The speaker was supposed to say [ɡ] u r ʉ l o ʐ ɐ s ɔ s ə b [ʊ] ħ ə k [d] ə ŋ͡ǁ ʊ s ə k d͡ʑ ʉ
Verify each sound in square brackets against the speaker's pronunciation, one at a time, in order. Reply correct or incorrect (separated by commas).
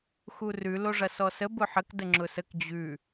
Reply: incorrect, correct, correct